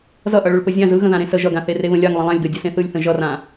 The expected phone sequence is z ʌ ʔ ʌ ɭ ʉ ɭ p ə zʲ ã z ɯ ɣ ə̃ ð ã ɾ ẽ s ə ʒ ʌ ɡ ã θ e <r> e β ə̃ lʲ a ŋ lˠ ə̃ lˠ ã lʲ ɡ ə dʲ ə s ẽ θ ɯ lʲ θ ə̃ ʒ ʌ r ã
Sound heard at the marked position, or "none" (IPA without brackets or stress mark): r